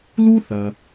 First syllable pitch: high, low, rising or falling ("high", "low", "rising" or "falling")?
high